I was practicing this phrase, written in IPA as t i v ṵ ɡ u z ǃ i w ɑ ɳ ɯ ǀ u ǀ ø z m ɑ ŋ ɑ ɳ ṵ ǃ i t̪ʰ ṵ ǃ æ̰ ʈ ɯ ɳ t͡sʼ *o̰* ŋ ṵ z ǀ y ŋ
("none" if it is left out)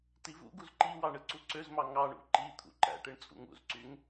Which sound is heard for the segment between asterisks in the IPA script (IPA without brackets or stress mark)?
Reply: ṵ